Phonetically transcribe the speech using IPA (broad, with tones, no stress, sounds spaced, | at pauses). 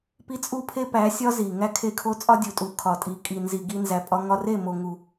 p i˦ t͡sʼ u˦ pʰ e˦ p æ˨˦ sʲ ɒ˦ z i˨ ŋ æ˦ kʰ e˦˨ kʰ o˦ t͡sʼ ɒ˦ dʲ u˨ tʼ u˨ kʰ ɒ˨ tʼ i˨ kʼ i˨ n z i˨ ɡ i˧ n z æ˨ pʼ ɒ˧ ŋ ɒ˧ r e˦˨ m o˨ ŋ u˨